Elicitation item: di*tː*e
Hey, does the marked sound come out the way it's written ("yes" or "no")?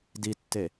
yes